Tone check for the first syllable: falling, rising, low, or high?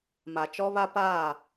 low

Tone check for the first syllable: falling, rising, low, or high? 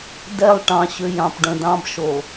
falling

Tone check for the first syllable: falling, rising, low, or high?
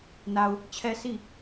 low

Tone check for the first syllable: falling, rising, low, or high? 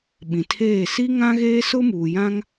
low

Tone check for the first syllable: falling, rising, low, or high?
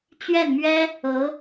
falling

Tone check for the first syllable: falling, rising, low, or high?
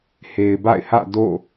low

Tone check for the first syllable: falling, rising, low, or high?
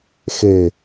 low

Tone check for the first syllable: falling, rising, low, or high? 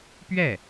falling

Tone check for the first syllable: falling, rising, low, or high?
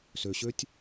low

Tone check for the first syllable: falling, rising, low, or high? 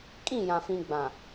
falling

